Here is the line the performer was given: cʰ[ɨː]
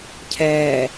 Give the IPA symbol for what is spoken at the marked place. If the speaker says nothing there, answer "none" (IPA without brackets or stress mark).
ɛː